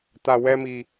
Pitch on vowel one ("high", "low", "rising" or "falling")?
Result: low